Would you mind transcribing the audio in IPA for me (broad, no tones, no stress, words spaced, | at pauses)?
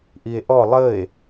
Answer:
ʔie̯ʔɔ lˠəe̯